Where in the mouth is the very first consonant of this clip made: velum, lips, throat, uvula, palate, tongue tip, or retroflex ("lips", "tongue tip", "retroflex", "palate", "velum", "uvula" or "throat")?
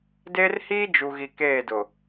tongue tip